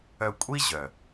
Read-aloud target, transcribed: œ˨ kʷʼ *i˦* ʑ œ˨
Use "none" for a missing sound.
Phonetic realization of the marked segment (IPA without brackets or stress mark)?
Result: i˦